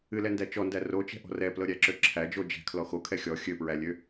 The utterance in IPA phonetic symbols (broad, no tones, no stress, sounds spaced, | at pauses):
ɨ l ɛ n d æ t͡ʃ ɔ n d æ r o t͡ʃ ɛ̤ ʔ ɔ̤ r ɛ p l ɤ ɾʲ æ ǁ ø ǁʰ æ d͡ʒ o d͡ʒ ɛ̤ kʰ l ɔ x o kʰ ɛ xʲ ɔ xʲ ø p ɹ æ lʲ ø